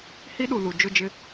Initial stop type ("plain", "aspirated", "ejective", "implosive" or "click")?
implosive